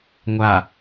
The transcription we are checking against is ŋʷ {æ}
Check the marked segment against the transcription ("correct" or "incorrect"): incorrect